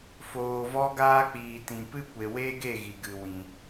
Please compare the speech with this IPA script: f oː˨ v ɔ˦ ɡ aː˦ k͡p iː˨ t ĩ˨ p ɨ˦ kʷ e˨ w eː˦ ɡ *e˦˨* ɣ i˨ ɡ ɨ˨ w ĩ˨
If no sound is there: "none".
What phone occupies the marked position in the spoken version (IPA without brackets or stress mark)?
e˦˨